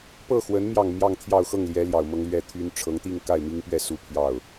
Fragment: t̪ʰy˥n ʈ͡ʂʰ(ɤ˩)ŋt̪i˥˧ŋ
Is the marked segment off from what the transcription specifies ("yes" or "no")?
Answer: yes